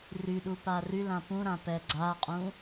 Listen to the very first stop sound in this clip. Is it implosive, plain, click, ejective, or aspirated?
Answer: implosive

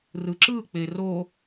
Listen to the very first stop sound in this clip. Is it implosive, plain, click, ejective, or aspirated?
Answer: click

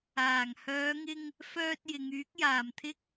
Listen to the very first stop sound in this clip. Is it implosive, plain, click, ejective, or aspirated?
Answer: plain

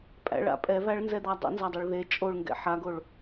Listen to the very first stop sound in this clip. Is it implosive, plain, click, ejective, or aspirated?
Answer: ejective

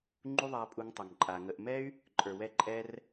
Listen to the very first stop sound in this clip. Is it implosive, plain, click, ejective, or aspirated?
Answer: click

